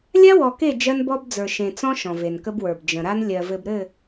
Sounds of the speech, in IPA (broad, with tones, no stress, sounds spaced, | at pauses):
lʲ a˦ w ɔ˨ k e˦˨ d͡ʒ ɜ˦ n b ɔ˦ b d͡z ə˞˨ ʃ ẽ˨ t͡s ɔ̃˦ ʃ ɔ̃˨ v e˨ n k ə˦ b w ə˞˨ b d͡ʒ ə̃˨ ɾ a˦ n lʲ ɜ˨ v ɘ˨ b ɾ ɘ˦˨